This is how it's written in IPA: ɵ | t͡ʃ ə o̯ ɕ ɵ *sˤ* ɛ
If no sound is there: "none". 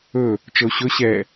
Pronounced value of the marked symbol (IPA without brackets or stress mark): ɕ